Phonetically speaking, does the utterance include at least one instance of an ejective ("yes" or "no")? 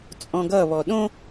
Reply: yes